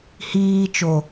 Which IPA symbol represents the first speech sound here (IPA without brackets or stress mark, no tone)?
h